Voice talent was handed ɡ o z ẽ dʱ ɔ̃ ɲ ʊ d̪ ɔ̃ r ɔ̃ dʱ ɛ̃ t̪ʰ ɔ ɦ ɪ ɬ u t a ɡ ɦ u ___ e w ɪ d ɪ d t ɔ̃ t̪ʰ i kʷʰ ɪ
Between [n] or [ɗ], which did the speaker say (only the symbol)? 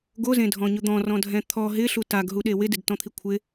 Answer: ɗ